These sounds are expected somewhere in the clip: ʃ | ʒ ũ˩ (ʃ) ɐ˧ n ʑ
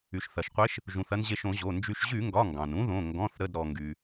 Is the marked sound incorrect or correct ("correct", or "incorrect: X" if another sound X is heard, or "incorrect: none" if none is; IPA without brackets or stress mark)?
incorrect: θ